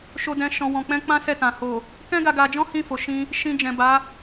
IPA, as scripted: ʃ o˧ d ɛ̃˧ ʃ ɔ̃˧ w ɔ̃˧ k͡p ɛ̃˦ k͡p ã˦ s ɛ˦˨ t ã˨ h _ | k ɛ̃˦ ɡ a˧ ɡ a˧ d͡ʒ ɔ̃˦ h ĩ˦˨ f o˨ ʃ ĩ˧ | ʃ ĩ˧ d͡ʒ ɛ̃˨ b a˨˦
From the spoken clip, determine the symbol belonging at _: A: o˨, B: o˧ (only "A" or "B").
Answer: A